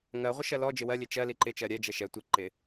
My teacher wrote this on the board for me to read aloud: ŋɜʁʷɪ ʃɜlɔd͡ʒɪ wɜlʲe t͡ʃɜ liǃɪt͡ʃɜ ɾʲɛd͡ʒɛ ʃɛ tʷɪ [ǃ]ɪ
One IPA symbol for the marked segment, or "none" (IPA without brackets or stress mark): ǃ